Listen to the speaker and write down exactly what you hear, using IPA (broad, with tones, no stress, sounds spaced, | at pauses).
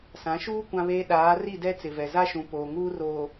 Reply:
s ã˨˦ ʃ uː˦ kʷ ã˦ β eː˦ ɗ aː˨˦ r i˦˨ d ɛ˦ t͡s ɪ˨ v ɛ˨ z a˦ ʃ ũ˨ p oː˨ ŋ uː˦ r oː˨